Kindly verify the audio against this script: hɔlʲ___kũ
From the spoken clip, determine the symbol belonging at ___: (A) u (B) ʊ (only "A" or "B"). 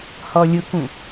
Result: B